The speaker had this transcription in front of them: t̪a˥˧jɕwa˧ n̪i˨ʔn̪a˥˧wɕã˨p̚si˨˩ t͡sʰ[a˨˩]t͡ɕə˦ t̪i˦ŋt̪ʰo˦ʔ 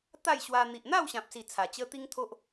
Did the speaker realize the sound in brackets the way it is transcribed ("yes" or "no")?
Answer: yes